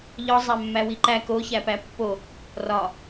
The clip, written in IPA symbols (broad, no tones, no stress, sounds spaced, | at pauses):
ʎ ɒ zˤ æ mː æ w i ǃ æ k o ç æ p æ pː o | r ɒ